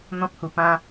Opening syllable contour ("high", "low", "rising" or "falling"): high